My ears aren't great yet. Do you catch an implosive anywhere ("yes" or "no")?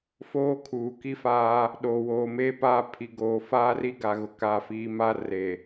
yes